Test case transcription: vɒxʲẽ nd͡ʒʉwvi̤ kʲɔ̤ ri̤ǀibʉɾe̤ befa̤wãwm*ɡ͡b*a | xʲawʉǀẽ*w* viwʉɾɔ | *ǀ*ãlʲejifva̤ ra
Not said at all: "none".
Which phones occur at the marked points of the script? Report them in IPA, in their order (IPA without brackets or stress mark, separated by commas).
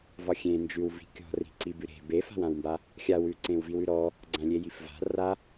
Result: b, w, ɡ͡ǀ